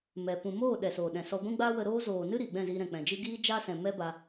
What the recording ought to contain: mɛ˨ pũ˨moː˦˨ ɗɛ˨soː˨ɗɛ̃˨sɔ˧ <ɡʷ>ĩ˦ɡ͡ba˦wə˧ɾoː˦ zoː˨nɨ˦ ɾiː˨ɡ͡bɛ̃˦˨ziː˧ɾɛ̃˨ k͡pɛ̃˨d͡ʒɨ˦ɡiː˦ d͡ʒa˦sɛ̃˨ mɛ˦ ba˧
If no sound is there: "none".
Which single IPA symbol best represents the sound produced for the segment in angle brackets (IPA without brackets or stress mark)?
ɡʷ